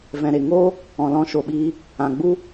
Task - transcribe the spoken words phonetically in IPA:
v ɛ̃˨ ɾ e˨ ŋ oː˦ | ɔ̃˨ l ɔ̃˧ ʃ o˨ ɓ iː˧ | ã˨ ɡ͡b u˦

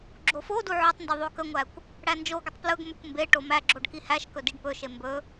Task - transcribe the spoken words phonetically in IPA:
ɡ͡ǁ o f o d u ʕ ɵ tˤ n d ɵ ðˤ o k ə ŋʷ æ kʷ | ɽ æ n d͡ʒ o ɡʷ ə tˤ p l ɵ ɡ m ɵ kʷ m b e ʈ o m æ ɡ͡ǁ o ɖ k i h æ ʃ k ɵ d i ɖ p ɵ ʃ e m b ɵ

